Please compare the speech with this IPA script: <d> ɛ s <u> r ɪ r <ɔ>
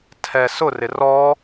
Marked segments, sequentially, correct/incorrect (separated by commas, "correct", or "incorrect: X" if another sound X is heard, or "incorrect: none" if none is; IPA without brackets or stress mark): incorrect: tʰ, incorrect: ʊ, correct